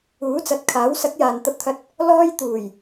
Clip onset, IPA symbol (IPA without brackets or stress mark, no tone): uː